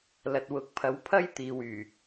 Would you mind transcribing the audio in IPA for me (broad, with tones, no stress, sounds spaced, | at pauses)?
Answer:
l ɐ˨ t̚ w ʊ˨˥ k̚ pʰ ɐ˨˥ w pʰ ɐ˥ j t̪ iː˨ w yː˨˩